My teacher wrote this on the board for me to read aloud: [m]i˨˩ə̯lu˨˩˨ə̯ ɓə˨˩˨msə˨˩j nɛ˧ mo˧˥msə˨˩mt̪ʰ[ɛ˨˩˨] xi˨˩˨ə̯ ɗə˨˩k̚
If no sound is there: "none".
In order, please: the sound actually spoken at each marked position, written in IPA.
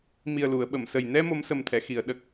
m, ɛ˨˩˨

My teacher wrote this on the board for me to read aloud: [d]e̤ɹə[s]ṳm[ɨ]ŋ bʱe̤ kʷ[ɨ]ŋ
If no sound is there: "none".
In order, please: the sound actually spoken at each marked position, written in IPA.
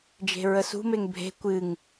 d͡ʒ, s, e, ɨ

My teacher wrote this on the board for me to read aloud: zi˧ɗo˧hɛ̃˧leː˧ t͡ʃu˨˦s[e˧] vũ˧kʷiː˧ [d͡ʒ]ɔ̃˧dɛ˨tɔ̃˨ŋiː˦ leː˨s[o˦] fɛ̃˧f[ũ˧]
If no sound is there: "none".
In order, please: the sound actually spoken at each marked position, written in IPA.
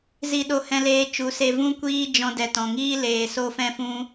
e˧, d͡ʒ, o˧, ũ˧

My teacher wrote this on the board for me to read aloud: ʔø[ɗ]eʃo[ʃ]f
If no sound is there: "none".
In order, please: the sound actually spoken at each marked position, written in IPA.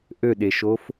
ɗ, none

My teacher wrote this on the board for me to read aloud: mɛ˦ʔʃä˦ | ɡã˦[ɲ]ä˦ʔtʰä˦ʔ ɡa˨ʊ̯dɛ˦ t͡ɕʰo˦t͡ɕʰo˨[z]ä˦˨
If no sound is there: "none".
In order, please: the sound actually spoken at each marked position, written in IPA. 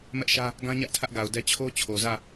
ɲ, z

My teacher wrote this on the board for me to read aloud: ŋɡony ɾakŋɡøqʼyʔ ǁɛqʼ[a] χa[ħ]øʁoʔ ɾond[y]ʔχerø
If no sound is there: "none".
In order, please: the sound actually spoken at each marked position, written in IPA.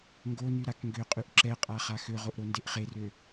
a, x, e

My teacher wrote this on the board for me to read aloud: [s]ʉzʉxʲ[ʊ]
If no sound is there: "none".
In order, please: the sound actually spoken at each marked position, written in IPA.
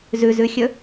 z, ɵ

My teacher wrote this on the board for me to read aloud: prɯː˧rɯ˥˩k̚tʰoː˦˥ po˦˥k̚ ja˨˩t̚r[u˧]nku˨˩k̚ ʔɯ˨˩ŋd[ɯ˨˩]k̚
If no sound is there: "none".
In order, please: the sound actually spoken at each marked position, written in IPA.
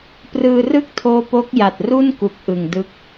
u˥˩, ɯ˦˥

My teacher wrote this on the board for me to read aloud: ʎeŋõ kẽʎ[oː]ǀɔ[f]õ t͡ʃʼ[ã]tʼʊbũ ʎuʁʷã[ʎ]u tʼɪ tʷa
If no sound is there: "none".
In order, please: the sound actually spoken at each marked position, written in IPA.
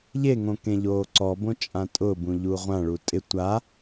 oː, b, ã, ɭ

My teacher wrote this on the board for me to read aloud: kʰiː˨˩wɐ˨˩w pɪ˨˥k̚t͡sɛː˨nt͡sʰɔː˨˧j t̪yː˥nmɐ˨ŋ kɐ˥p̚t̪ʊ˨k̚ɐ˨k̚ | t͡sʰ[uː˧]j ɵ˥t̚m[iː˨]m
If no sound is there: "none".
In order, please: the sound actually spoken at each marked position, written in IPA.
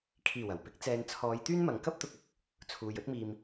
uː˨, iː˧

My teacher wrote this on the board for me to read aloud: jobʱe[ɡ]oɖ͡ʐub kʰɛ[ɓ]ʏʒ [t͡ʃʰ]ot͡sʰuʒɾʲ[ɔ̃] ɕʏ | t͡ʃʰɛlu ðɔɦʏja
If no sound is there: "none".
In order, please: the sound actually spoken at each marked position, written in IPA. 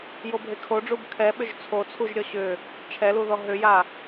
kʰ, ɓ, t͡sʰ, ɔ

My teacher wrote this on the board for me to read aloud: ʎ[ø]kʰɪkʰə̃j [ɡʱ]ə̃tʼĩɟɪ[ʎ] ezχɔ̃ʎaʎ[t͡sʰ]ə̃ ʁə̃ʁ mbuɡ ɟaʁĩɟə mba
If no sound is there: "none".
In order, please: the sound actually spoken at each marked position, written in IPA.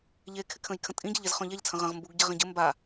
e, kʰ, ʎ, t͡sʰ

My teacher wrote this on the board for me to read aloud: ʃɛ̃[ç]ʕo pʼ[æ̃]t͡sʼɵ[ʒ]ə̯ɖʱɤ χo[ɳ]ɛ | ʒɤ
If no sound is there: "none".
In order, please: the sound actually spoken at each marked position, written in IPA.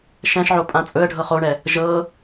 ʃ, ã, none, ɳ

